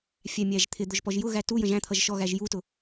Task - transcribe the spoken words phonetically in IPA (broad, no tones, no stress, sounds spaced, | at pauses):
fʲ æ mʲ æ ʒ t̪ʰ ɪ d̪ ʊ ʒ p ɔ ʒ j ʊ ɣ æ t u j ə̃ ʒ æ̃ t̪ʰ ʌ ʒ ʃ ɔ ɣ æ ʒ j u t ʊ